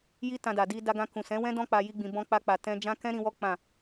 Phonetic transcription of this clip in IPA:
j i˦ t ã˧ d a˨ d i˧ d a˧ ɡ ã˧ k ũ˨ s ɛ̃˨˦ w ɛ̃˦ d ɔ̃˦ k͡p a˧ j i˦ ɡ͡b ĩ˧ b ɔ̃˦ k͡p a˧ k͡p a˨ t ɛ̃˧ d͡ʒ ã˦ k ɛ̃˦ ɾ ĩ˧ w ɔ˦ k͡p ã˦˨

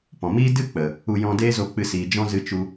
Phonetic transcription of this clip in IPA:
p ɔ̃˨ m iː˦ d ɨ˦˨ k͡p ə˨ | u˧ j ɔ̃˧ d eː˦ z o˧ k͡p ɨ˧ s iː˨ d͡ʒ ɔ̃˦ z ɨ˧ t͡ʃ u˧

